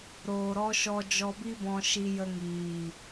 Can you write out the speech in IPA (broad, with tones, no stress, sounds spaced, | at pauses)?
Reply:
ɾ oː˨ ɾ ɔ˧ ʃ ɔ˧ d͡ʒ ɔ˧ b i˦ b ɔ̃˧ ʃ i˧ j ə˧ ŋ iː˨